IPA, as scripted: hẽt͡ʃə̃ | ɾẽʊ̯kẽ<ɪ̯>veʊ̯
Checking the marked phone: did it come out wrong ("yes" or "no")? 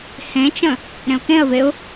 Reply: yes